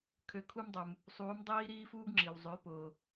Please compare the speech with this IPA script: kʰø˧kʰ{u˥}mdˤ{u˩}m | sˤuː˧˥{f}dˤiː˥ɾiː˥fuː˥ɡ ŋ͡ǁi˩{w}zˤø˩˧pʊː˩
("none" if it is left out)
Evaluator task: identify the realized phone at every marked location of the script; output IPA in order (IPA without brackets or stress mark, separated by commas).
u˥, u˩, m, w